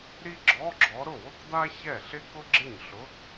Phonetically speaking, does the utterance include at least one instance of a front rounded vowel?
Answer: no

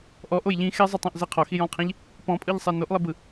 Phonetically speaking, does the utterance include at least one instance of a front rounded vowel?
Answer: no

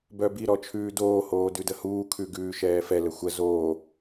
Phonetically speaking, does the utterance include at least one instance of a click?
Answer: no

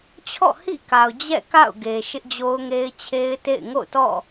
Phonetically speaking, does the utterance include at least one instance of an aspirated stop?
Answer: yes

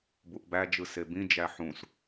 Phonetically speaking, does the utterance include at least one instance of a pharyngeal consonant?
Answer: yes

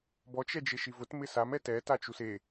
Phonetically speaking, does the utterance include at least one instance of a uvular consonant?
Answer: no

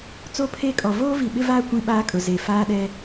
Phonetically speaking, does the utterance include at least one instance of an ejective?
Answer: yes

